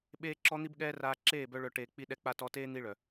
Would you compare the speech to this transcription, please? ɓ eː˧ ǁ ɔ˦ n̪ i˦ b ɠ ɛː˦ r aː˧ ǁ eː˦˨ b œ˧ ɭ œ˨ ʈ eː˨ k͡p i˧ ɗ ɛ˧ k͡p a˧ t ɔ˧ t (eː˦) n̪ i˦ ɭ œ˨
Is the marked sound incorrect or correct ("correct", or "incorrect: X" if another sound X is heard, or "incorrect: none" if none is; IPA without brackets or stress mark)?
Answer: correct